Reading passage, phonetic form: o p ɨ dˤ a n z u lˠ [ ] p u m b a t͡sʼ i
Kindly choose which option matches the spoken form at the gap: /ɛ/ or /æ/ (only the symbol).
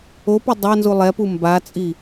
ɛ